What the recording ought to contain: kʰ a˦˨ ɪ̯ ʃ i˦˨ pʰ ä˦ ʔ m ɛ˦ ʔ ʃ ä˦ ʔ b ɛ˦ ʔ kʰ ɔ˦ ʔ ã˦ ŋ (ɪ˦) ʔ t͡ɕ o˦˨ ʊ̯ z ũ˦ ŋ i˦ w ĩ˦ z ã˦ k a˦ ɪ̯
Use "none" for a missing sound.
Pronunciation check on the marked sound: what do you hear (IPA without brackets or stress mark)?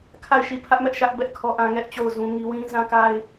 ɛ˦